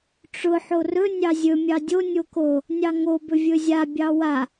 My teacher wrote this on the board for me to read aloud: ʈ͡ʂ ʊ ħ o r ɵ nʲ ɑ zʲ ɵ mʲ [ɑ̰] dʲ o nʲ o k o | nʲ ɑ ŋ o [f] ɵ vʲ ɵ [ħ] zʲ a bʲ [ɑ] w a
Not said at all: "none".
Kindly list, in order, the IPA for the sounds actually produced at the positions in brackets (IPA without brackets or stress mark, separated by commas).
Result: ɑ, b, none, ɑ